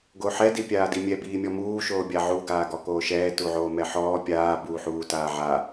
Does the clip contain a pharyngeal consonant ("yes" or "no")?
yes